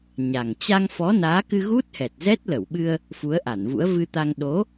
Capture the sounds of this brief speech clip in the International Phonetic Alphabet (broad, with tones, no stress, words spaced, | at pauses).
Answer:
ɲa˨˩ŋ t͡ɕa˧ŋfɔ˨˦ naː˨˦kɨ˧ ɣu˦˥t̚hɛ˨˩t̚zɛ˦˥t̚ lə˧˩wɓɨ˧ə̯ | fu˨˦ə̯ʔa˧˩nvṵ˧˥ə̯ vɨ˧t̪a˧ŋ ɗo˨˦